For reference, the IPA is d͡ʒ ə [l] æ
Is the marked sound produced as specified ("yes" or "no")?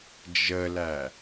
yes